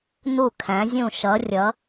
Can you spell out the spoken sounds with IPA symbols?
n u˦˨ kʰ æ̃˨˦ zʲ ũ˦˨ ʃ ʌ˨˦ rʲ ʌ˨˦

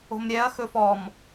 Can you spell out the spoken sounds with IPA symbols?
o̤ m ɾʲ ɛ ɐ̯ x ɵ f ɔ m

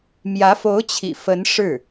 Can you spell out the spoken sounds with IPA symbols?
m j ä˧˥ f o˧˥ ʊ̯ t͡ɕʰ ḭ˨˩ f ə˧˥ n ʂ ɻ̩˥˩

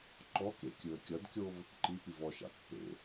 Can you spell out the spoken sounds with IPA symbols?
ǃ ɔ k ḛ kʲ ɯ ə̯ kʲ ʌ d kʲ o v | ǃ i p i v ɔ ʃ a̰ pː ḛ

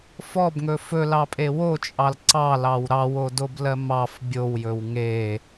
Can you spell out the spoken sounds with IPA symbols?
f ɔ b ŋ ɵ f ɵ l ɑ pʼ e w o t͡ʃʼ ɑ l ǀ ɑ l ɑ w ɾ ɑ w o d o b l ɜ m ɑ f bʲ o w j ɵ w ŋ e

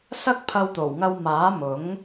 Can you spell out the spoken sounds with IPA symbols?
s ɐ˥ k̚ pʰ ɐ˧ w t̪ o˨˩ w ŋ ɐ˧ w m aː˨˥ m ʊ˨˥ ŋ

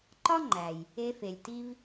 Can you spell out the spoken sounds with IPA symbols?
ǃ ɒ˥ ŋ͡ǃ æ˩ j | e˧ f e˩ lʲ t i˥ v

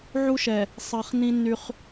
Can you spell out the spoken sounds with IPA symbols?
ʕ u˦ ʃ ɛ˨ | sˤ ɜ˨ χ n ĩ˦ nː y˦ χ

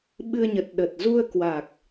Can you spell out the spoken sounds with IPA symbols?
ɓ ɨ˧ ə̯ ɲ ə˨˩ t̚ ɗ ə˨˩ t̚ z u˧ ə̯ k w a˨˩ k̚

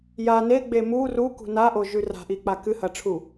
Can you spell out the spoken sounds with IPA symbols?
j a n e ɡ͡b e m u r u k ṳ n a ʔ o ʒ ʉ r a̤ ʔ i k͡p a k ɨ h ɐ ʈ͡ʂʰ u

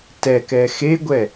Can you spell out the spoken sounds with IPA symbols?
t ɛ k ɛ x e ɡʷ ɛ

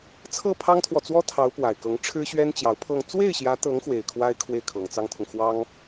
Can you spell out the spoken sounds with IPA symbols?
t͡sʰ ɤ˥˩ pʰ ɑ˥ ŋ t̪ʰ w ɔ˨ t͡s w ɔ˥ t̪ʰ ɑ˧˥ ʊ̯ p w a˨˩ ɪ̯ k ɤ˧˥ ŋ ʈ͡ʂʰ ɻ̩˥ ɕ ɥ ɛ˥ n t͡ɕ j ɑ˧˥ ʊ̯ pʰ ɤ˥˧ ŋ t͡s w e˥˩ ɪ̯ ɕ j ä˧˥ t̪ ɤ˧˥ ŋ x w e˨˩ ɪ̯ kʰ w a˥ ɪ̯ kʰ w e˥˩ ɪ̯ kʰ ɤ˨˩ ŋ t͡s ɑ˥ ŋ t̪ʰ ʊ˨ ŋ x w ɑ˥ ŋ

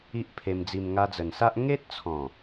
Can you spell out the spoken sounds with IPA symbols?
i˦ ʔ pʰ e˧ m d͡z i˧ m ŋ a˧ d͡z ə˨˩ n s a˦ ʔ ŋ e˦ t̚ t͡sʰ ɔ̃˨˩

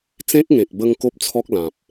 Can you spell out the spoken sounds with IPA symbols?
t͡s ẽ˦ k̚ ŋ ẽ˨ k̚ b ə˧ ŋ k o˦ p̚ t͡sʰ ɔ˦ k̚ l ã˨ p̚

